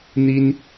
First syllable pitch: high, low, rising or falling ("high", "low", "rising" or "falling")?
high